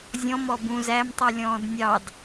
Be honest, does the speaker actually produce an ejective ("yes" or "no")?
no